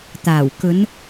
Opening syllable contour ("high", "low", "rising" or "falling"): low